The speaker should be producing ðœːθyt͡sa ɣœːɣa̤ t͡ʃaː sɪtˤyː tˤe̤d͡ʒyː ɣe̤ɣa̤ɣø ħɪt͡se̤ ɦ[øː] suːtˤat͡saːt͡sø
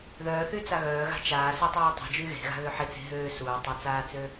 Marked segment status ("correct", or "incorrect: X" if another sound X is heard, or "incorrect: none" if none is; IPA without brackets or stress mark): correct